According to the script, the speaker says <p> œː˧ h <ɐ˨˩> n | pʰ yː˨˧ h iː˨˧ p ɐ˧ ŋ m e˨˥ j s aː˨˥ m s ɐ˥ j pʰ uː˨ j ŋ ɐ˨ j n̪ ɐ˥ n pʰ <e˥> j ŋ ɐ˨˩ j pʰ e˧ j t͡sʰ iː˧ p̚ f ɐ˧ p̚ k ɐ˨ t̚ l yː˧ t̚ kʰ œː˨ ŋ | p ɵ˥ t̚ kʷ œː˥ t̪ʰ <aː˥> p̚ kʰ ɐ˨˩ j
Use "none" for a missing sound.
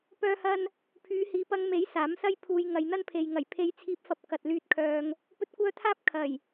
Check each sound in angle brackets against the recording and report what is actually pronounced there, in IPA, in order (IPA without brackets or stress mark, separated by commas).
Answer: p, ɐ˧, e˨, aː˥